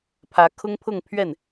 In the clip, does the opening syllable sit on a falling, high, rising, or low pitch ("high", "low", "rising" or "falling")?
rising